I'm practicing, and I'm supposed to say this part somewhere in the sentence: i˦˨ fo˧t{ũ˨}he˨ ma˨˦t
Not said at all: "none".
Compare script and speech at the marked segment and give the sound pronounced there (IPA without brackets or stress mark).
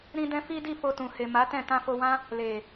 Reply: ũ˨